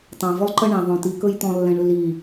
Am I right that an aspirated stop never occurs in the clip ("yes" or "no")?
yes